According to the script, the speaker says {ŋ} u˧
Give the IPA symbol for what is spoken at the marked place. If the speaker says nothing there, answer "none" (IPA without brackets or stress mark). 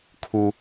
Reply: kʰ